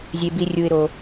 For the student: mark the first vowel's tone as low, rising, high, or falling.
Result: low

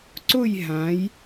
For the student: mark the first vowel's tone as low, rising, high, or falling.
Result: falling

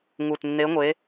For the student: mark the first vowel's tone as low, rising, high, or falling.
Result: low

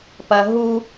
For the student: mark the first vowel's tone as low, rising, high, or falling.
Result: high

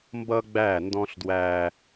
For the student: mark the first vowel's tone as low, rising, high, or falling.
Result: high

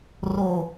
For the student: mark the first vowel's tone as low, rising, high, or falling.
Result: low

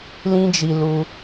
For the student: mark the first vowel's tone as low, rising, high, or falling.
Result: high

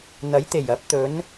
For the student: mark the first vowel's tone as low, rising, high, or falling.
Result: rising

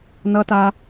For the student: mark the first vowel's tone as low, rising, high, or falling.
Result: high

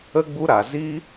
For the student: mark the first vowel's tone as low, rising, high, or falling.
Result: high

